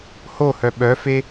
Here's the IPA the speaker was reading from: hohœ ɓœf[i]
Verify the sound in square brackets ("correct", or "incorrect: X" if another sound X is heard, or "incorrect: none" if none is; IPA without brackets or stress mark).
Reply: incorrect: e